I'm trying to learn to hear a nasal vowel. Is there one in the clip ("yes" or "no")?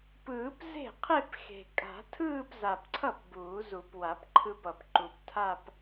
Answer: no